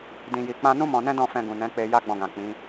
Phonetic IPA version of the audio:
dĩ˨ji˨k͡pã˧nũ˦ mɔ̃˧nɛ̃˦ dɔ̃˦˨fɛ̃˧ ɡũ˨nɛ̃˨˦k͡pe˧ ja˦ɡ͡bɔ̃˧ɡã˨k͡pĩ˨˦

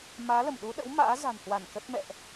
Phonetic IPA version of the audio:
maː˨˦lə˧˩m ɗu˨˦ɗə̰˧˥w ma̰ː˧˥za̤˨˩nhwa˧˩n kə˦˥t̚mɛ̰˧˨ʔ

